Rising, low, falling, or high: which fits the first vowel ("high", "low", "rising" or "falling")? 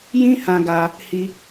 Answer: high